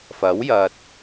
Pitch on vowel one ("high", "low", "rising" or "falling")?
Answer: rising